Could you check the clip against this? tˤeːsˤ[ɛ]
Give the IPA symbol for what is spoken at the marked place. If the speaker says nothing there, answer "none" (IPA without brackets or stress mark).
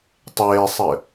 ɘ